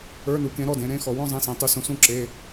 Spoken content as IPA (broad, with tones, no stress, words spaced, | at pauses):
ə˞˧˥˧nu˩˥kẽ˩˥ ɾɔ˩˧˩dẽ˥˧ɾẽ˧˥˧xɔ˩˧ wɔ̃˥˧zˤĩ˩˧˩sẽ˩˧ tˤʉ˩˧sũ˩˧ sũ˥˧ǁe˩˧˩